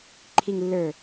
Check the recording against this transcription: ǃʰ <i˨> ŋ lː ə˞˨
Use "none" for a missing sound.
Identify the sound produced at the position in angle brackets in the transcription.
i˨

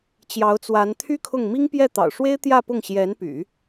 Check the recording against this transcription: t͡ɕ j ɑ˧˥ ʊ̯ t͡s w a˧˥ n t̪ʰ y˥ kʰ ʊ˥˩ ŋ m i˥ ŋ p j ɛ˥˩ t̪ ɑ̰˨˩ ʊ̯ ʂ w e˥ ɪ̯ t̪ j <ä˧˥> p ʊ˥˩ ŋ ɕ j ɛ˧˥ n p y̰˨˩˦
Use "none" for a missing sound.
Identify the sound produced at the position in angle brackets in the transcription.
ä˥˧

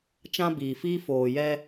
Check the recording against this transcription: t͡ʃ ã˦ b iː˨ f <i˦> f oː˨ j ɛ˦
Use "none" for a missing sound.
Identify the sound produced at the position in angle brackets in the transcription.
iː˦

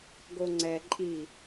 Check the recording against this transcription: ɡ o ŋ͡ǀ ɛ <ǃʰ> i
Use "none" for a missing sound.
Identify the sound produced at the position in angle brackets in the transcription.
ǃʼ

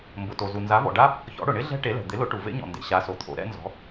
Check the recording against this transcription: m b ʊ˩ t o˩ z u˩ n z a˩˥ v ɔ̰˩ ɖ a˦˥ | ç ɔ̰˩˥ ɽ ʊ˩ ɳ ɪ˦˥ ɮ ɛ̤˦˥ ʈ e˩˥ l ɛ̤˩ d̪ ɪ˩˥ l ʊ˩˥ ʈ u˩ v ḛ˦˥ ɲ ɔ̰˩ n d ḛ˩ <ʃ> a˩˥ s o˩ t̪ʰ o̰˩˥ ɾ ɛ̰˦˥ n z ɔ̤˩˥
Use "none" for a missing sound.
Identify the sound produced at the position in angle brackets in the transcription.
ɕ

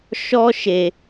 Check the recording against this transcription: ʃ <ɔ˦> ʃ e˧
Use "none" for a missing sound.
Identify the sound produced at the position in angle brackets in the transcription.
ɔ˦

